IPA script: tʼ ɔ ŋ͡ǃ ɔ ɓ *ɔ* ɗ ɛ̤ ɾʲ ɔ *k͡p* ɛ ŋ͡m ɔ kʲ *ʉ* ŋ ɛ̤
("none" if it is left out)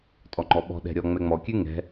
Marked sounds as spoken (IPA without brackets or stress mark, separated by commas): ɔ̤, ŋ͡m, ʉ